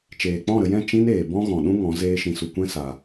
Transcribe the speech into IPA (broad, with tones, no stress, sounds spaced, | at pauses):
t͡ʃ eː˨ k͡p ɔ̃˦˨ ɾ ə˧ j ɛ̃˦˨ t͡ʃ ĩ˦ n eː˨ b ɔ̃˦ ɣ ɔ̃˨ ɗ ũ˦ ŋ ɔ̃˨˦ z eː˧ ʃ ĩ˨ s u˨ kʷ ɛ̃˦ s a˧